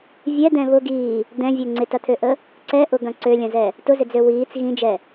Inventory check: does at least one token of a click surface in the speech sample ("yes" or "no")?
yes